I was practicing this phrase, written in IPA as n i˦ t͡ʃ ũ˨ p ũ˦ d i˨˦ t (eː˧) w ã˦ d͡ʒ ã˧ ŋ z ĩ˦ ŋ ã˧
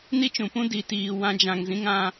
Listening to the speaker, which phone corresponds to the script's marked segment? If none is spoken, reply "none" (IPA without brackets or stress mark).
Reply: iː˧